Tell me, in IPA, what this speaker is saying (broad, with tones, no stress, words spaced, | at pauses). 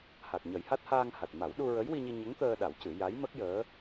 ha˨˩k̚ɲə˨˩˦jha˦˥t̚ haː˧ŋha˨˩t̚ma˨˩˦w ɗu˧ɹə˧˥jwi˧ɲi˧ ɲə˧˥ŋt̪əː˧ ɗa˨˩˦w cɨ˨˩˦ ja˧˥jmə˦˥k̚ jəː˧˥